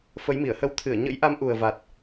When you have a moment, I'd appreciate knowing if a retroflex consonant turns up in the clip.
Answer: no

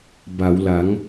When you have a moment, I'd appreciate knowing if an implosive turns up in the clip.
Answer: no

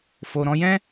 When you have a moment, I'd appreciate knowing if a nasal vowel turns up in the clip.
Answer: yes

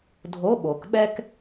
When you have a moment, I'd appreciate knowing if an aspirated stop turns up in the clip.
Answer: no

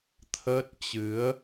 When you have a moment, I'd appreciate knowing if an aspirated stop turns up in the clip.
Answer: yes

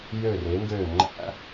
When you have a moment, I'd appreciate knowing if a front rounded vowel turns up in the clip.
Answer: yes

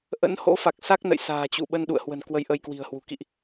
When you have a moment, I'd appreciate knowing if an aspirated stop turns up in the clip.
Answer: no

